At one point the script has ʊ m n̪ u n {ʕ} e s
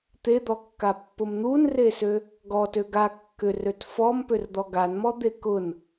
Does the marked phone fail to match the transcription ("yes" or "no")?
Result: yes